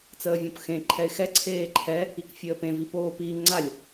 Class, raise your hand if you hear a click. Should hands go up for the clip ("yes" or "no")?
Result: yes